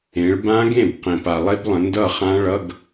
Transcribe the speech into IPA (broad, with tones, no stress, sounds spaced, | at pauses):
ẽ˩˧ ɭ b ã˦˥ ɡ ẽ˥˩ b q ẽ˩ p a˩ lˠ e˦˥ b lˠ ə̃˩˧ n d ʌ˥˩ χ ã˦˥ ɭ ʌ˧˥˧ ɡ